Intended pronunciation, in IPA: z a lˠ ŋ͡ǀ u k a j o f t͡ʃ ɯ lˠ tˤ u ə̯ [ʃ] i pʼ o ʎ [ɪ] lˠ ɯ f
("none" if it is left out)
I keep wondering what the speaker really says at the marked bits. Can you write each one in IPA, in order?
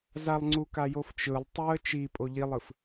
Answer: t͡ʃ, i

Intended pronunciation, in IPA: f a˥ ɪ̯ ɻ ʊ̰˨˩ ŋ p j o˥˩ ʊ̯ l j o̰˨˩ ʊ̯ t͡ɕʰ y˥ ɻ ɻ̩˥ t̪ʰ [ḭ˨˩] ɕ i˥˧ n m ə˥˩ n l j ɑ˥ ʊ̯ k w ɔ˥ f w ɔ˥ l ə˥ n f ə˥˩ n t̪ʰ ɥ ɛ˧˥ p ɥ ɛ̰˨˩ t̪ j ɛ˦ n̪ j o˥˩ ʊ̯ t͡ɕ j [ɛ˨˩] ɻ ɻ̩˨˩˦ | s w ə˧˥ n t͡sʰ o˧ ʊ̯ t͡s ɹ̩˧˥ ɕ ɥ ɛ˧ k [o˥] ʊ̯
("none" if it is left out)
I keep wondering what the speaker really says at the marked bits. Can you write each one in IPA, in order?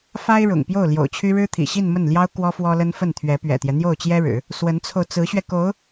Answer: ḭ˨˩, ɛ˥, o˧˥

